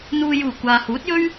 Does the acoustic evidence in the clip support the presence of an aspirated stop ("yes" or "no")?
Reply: no